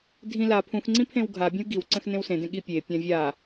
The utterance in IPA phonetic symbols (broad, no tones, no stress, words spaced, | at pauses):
dʱĩ la pʰũxŋ͡ǀĩ pʰẽwɡʱabʲə̃w ɡiwǀə̃x nẽwsẽdẽ ɠipʲepʲã vʲa